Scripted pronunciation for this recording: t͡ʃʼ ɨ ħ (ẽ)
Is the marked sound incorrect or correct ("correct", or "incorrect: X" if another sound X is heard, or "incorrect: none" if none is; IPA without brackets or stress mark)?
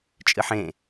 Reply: correct